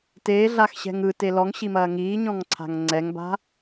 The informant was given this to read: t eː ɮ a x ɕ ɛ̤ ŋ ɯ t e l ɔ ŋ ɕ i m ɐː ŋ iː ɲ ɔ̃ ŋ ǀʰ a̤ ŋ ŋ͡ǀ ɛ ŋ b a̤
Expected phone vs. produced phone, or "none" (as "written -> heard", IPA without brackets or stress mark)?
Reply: none